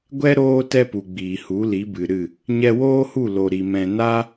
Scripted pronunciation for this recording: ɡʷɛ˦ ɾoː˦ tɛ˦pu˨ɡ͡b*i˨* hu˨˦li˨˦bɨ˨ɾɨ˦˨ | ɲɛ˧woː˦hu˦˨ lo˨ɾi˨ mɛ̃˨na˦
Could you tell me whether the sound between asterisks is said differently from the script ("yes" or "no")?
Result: yes